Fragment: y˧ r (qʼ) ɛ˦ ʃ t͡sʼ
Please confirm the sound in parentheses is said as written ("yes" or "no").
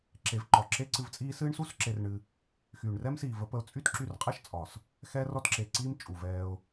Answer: yes